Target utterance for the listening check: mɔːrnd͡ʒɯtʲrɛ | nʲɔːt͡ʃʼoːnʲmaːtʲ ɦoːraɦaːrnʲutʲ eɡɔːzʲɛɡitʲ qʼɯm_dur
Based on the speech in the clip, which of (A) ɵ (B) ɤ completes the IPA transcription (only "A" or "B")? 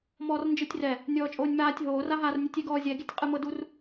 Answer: B